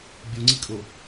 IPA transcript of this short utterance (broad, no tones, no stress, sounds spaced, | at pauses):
bʲ u ŋ͡ǀ i kʼ o